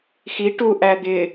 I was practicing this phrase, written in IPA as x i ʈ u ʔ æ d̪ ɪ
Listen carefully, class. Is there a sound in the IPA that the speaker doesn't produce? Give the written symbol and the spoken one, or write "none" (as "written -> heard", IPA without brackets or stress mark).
none